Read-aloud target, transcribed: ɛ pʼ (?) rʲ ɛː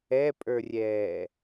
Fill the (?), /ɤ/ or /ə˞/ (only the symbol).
ə˞